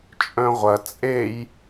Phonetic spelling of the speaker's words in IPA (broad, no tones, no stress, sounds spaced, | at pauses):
t͡ʃʼ œ̃ ʁʷ ɐ t͡sʼ e j